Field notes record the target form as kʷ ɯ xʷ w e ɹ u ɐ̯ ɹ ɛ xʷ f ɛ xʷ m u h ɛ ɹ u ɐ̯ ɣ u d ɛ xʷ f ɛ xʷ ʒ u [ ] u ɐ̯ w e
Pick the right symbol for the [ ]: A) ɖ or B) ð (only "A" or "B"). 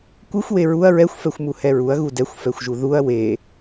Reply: B